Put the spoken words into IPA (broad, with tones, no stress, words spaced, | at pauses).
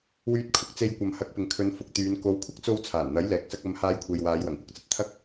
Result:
wyː˧t̚kʰʊ˨k̚t͡se˧j kʷɐ˨mhɐ˨˥k̚pɪ˨ŋkʰɵ˨˧n fʊ˧k̚t̪yː˨˧n ko˨˧wkʷʰɐ˥k̚t͡so˧w t͡sʰaː˨˩nn̪ɐ˨˥jlɛː˨k̚sɐ˧k̚ ɐ˨˧m haː˧jkʷʰe˨jwaː˨˧j wɐ˨˩ŋkʷɐ˥k̚t͡sɐ˨t̚ t̪ʰɐ˥k̚